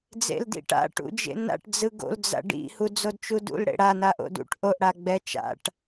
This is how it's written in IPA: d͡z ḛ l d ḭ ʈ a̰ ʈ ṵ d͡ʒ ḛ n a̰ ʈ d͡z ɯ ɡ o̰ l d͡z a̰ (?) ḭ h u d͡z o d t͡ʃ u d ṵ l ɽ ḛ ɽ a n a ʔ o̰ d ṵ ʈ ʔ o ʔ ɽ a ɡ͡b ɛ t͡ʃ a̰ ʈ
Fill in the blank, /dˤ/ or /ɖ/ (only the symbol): ɖ